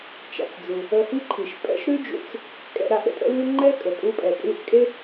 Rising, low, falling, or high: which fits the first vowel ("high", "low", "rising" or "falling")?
low